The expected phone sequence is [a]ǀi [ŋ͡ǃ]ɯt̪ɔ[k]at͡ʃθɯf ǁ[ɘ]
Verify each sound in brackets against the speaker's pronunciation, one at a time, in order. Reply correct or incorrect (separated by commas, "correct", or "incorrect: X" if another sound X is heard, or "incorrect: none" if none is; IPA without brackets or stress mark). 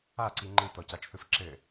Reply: correct, correct, incorrect: c, correct